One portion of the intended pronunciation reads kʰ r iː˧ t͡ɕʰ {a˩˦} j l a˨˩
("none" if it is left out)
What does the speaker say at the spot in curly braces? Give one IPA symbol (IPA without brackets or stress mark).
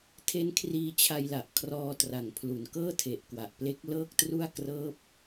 a˧